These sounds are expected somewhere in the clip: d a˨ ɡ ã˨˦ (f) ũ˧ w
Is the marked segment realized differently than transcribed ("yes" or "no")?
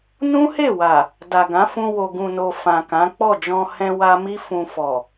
no